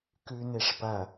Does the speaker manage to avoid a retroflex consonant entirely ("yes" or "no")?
no